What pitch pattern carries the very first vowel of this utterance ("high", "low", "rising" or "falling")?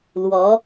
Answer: rising